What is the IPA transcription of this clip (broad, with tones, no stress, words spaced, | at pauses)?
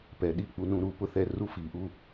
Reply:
pɛ˩ɗi˧˩ k͡pu˩nũ˩ɾuː˩ pʊ˩θɛ˩ ru˧˩fiː˩ ʔu˧˩